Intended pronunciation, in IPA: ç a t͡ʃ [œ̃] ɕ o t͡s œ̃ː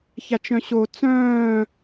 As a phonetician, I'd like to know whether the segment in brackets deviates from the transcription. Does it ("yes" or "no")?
no